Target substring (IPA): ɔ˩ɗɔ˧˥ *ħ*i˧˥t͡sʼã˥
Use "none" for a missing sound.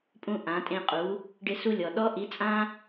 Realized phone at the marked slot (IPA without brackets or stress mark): ʔ